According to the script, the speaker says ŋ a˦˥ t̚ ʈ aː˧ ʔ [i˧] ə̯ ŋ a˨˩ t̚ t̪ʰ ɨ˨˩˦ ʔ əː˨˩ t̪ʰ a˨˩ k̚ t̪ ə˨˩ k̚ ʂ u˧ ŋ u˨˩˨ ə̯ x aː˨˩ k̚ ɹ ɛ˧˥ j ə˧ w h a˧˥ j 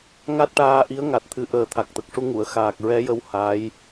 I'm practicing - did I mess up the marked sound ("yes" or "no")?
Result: yes